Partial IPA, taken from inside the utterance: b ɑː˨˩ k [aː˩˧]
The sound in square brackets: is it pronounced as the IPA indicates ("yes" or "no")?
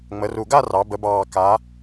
yes